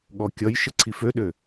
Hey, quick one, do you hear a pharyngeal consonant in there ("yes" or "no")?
no